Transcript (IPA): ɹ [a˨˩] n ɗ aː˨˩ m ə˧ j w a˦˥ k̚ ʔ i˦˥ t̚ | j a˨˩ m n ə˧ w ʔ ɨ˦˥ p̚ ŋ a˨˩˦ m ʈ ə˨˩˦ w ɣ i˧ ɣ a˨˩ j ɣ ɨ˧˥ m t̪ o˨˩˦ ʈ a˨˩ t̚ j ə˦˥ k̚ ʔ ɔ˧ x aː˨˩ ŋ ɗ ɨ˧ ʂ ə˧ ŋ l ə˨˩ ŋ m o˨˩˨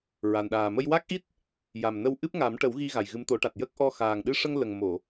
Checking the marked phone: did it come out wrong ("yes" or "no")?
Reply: no